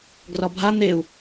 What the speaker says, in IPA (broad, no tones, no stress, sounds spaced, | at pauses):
ɡ r ɒ bʱ a n̪ e u̯